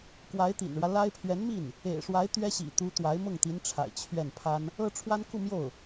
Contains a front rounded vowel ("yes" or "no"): no